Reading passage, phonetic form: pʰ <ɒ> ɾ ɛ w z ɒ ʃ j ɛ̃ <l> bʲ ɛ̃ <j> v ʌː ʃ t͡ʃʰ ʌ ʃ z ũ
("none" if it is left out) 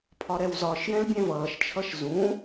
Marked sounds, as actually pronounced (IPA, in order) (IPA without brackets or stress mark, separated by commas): ɒ, l, none